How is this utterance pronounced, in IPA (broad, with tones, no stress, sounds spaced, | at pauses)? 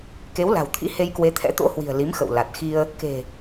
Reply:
k e˨˦ w l a̤˨˩ w t̪ʰ ḭ˧˥ h e˧ j k w e˨˦ t̪ʰ ɛ̰˧˥ t̪ o̰˧˥ h w i̤˨˩ ə̯ l i˨˦ m x ə̰˧˨ w l a˨˩ t̚ x i˧ ə̯ | k e̤˨˩